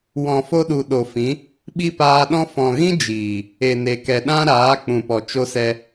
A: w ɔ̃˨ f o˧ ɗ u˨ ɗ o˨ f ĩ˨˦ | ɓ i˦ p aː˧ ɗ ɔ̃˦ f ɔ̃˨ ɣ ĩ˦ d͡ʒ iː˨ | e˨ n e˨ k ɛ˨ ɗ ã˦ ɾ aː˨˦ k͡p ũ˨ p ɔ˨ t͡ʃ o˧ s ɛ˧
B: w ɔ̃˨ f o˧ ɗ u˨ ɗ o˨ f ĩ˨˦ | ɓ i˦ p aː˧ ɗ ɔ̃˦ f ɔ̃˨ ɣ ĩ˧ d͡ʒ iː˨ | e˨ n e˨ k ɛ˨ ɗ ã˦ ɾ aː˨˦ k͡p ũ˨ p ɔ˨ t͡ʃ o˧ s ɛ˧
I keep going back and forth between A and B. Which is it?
A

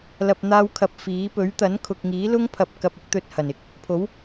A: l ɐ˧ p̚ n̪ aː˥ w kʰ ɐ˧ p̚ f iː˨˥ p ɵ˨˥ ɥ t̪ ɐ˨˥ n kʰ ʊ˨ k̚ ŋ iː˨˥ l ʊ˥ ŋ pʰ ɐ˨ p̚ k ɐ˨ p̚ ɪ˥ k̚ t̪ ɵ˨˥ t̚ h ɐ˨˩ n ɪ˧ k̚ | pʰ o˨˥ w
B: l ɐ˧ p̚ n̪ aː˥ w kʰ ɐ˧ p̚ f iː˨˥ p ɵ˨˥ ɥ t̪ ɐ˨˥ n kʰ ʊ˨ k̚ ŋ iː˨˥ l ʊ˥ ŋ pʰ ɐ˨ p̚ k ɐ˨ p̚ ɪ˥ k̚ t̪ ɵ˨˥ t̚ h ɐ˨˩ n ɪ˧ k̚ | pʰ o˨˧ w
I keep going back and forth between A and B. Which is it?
A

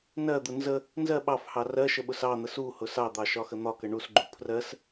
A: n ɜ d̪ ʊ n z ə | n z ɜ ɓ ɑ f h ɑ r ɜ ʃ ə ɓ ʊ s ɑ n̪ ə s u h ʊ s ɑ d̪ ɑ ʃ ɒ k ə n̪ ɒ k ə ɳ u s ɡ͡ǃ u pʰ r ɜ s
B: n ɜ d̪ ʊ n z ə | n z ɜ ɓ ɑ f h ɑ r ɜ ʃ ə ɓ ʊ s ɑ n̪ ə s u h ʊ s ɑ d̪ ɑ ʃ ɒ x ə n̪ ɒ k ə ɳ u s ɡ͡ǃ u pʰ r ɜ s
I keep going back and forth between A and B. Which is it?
B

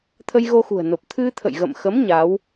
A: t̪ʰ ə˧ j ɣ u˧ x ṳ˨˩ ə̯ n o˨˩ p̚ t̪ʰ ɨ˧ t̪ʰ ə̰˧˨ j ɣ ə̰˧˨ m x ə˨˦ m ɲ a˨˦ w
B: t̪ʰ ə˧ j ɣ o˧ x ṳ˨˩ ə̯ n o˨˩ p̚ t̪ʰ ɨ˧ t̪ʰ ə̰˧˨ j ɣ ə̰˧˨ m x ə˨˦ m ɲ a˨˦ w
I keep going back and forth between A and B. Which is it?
B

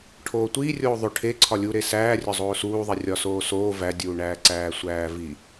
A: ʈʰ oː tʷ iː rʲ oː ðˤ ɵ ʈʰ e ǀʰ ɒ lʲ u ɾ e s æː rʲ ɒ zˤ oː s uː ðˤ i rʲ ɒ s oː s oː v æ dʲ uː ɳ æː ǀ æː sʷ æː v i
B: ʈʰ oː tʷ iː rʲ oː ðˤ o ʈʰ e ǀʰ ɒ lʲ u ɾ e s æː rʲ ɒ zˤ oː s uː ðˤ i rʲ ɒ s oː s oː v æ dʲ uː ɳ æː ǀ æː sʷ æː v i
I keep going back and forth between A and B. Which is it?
B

